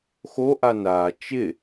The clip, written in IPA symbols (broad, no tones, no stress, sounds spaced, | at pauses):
x o ʔ a n aː t͡ʃ ɪ